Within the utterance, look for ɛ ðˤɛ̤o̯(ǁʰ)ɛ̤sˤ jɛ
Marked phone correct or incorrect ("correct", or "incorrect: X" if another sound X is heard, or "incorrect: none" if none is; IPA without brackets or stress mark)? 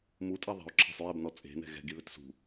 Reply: correct